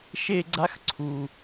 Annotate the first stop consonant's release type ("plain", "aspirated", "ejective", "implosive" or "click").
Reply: click